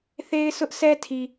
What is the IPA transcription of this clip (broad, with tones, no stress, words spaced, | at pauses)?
θe˦ɪ̯sʊ˦ʔsɛ˦tʰi˨